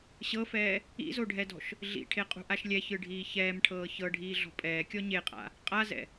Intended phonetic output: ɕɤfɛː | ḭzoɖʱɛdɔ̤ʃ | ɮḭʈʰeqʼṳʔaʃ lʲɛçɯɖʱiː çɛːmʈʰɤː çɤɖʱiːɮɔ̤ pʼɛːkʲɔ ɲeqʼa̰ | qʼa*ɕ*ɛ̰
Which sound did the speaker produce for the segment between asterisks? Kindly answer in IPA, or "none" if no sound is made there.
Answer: z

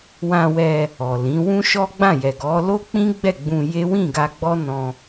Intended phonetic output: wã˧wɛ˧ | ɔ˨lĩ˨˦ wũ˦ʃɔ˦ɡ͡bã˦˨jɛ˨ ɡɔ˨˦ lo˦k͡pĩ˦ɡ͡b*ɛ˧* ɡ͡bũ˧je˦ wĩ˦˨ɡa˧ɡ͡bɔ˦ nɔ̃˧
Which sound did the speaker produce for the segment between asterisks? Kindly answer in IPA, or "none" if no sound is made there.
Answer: ɛ˦˨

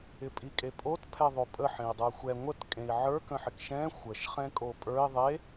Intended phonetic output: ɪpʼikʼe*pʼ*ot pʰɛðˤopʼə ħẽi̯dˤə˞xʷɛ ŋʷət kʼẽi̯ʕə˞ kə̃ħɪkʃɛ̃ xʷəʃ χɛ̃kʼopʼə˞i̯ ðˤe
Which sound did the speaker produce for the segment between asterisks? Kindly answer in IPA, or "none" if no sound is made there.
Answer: pʼ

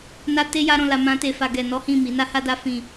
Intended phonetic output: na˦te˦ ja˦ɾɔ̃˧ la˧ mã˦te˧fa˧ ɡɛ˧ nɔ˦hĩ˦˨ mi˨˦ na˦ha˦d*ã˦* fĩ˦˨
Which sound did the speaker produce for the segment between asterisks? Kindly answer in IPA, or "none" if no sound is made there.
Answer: a˦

